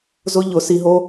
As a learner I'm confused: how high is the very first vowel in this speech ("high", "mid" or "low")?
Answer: high